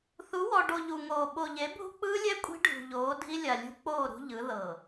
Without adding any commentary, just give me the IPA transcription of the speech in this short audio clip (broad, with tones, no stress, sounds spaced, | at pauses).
θ u˨˦ w ɔ˨ ɖ o˨ ʎ u˨ ŋ oː˨ ɓ o˨ ʎ e˨˦ bʱ ṳ˦ k͡p ɯː˦ lʲ ɛ˦ kʷʼ i̤˦ ɖʱ ṳ˨ ʎ oː˨˦ dʱ i˦ lʲ a˨ lʲ ṳ˦ k͡p oː˦˨ ɾ ṳ˦ ʎ ɯ˨˦ ð ɤ˨